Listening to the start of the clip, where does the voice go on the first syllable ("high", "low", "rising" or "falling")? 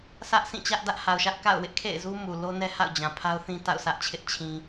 high